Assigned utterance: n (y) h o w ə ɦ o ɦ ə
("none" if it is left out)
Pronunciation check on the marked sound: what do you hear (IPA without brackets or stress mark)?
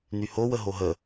y